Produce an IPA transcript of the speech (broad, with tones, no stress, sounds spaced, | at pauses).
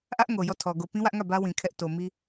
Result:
ʔ ä˦ ʔ ŋ o˨ j ɔ˦˨ tʰ ɔ˨ ɡ o˨ p ĩ˦ w ä˦ ʔ ŋ ä˦˨ b ä˦ w ĩ˨ kʰ ɛ˦ ʔ t o˨ m i˦